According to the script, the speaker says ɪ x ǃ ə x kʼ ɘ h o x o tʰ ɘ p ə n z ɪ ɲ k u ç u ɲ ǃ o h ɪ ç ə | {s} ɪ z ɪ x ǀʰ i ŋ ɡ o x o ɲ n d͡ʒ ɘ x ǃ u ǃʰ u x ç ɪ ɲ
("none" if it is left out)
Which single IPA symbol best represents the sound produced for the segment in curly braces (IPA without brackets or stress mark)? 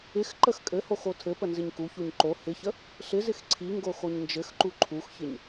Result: ɬ